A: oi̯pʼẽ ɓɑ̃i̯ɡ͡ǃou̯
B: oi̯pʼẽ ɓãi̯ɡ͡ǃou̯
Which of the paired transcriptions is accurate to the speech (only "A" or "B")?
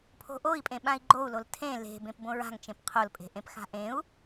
B